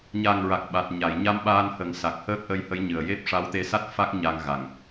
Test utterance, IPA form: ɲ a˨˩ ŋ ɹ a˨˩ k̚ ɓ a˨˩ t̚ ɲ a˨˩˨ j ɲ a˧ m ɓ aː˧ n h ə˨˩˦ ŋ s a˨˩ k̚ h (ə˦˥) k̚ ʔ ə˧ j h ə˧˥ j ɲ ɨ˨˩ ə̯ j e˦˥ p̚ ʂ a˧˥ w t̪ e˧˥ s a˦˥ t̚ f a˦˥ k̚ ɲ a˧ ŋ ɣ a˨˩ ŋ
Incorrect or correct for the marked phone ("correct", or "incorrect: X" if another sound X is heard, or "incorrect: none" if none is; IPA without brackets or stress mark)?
incorrect: əː˦˥